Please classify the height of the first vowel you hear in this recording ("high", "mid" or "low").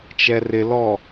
mid